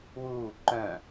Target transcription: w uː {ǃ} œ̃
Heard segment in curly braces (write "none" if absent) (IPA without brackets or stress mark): ǃ